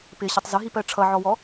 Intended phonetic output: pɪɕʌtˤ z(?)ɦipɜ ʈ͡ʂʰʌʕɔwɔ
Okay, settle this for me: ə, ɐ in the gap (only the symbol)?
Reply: ə